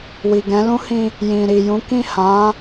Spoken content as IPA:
wi˨ɡɛ̃˨˦lũ˦hĩ˧ | jĩ˨ɾi˨jũ˨˦kĩ˦˨ hã˨˦

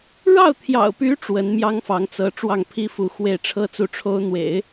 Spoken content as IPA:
ɻɑ˥˩ʊ̯t̪ʰjɑ̰˨˩ʊ̯py˧˥ ʈ͡ʂwə˧˥nmjɑ˥ŋfɑ˧˥ŋt͡sɤ˧˥ ʈ͡ʂwɑ˥˩ŋpʰi˥fu˧˥xwe˥˩ɪ̯ ʈ͡ʂʰɤ˥t͡su˥˩ʈ͡ʂʰo˥ʊ̯ n̪wḛ˨˩˦ɪ̯

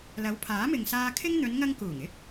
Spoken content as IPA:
lɐ˨˥wpʰaː˨˥mɪ˨ŋsaː˧ kʰɪ˥ŋ n̪ɵ˨˧nŋɐ˧ŋ kuː˨˩ŋɪ˥k̚

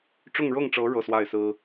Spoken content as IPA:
ʈ͡ʂʊ˥˧ŋɻɤ˥˩ŋʈ͡ʂɤ˧˥ ɻɤ˥˧swa˥˩ɪ̯sɹ̩˥

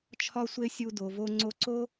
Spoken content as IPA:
t͡ʃʰɒ˦sʷe˦sʲu˧ do˨vo˧ ŋ͡ǀo˧ǀo˦

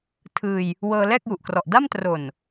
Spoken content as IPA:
tʰɯː˧j | wɤː˧lɛː˥˩k̚ju˨˩ʔkrɔ˨˩ʔ da˥˩mtro˨˩n

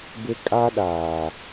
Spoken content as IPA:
bɪ˦kʼa˦ɗaː˨

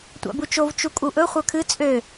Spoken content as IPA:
tʷa̰but͡ʃov t͡ʃukʼuʔɵ χʷœkʰɨ t͡sʼø

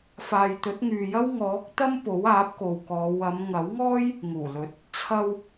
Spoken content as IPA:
faː˨jt̪ɵ˨˥t̚ŋyː˨jɐ˥w ŋɔː˨˥k̚t̪ɐ˥m po˨˥waː˨˥p̚ko˨wkɔː˨˧ wɐ˨˧m ŋɐ˨˥wŋɔː˥j | ŋuː˨˩lɵ˨˥t̚ | t͡sʰɐ˧w

